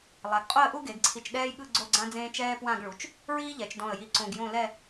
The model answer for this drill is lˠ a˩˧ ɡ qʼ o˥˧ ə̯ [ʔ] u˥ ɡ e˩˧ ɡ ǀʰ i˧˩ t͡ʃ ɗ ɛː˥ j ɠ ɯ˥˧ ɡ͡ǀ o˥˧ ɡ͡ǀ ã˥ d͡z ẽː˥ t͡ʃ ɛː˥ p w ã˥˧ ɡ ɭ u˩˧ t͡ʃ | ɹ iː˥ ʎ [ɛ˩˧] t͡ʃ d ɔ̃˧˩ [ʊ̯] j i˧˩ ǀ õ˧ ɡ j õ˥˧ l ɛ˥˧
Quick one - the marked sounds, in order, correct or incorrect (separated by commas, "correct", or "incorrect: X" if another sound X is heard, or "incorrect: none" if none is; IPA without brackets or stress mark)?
correct, correct, incorrect: ə̯